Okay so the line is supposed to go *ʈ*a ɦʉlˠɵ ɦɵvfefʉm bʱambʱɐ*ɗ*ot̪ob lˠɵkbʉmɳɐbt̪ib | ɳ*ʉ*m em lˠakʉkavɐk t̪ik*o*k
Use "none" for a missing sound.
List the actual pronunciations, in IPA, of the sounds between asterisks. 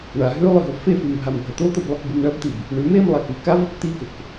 ɳ, t̪, ʉ, ɵ

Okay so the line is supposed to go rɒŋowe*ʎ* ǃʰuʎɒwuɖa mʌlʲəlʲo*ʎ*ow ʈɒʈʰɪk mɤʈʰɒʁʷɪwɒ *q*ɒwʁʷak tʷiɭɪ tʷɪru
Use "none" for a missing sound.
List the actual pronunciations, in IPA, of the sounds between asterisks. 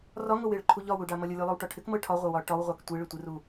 ɭ, lˠ, ʈ

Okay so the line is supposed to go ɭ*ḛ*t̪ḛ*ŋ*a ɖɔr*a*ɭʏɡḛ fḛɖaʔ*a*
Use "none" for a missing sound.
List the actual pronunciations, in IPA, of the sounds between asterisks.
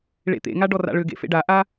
ḛ, ŋ, a̰, a

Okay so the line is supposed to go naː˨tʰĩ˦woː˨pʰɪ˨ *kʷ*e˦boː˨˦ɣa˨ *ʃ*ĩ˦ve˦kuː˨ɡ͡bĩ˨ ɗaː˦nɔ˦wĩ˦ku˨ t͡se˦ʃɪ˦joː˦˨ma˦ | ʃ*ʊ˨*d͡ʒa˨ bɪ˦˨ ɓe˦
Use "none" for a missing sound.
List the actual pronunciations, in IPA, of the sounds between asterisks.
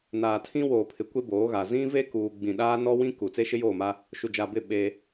kʷ, z, u˨

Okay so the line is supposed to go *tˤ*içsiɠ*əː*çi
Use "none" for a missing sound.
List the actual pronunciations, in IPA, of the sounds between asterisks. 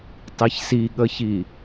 tˤ, ə

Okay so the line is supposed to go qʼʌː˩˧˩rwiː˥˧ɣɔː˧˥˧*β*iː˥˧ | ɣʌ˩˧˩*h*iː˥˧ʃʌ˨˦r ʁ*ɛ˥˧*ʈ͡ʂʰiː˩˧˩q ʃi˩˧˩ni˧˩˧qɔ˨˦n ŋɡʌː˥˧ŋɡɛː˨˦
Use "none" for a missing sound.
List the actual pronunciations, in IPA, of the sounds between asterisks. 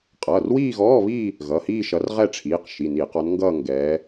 β, h, ɛ˥˧

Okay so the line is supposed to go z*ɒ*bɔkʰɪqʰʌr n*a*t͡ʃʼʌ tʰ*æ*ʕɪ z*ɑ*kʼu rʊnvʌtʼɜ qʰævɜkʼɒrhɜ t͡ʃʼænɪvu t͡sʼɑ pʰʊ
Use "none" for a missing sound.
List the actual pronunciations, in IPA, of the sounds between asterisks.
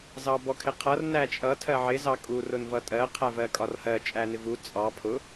ɑ, æ, ɜ, ɑ

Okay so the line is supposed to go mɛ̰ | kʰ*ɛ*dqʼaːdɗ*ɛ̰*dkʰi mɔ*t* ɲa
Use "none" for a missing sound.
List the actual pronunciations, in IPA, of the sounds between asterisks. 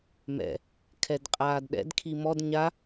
ɛ, ɛ̰, d

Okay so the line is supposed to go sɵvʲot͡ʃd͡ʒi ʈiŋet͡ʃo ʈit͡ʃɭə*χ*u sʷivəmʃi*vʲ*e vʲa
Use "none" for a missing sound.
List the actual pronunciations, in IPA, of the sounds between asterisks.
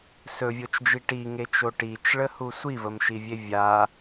h, vʲ

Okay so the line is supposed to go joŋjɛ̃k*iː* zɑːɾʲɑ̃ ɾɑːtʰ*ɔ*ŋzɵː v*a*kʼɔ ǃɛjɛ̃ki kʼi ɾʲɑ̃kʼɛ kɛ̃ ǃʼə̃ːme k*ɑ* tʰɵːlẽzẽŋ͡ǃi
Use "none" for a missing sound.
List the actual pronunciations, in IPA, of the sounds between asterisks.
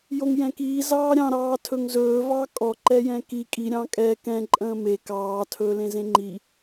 iː, ɵ, ɑ, ɑː

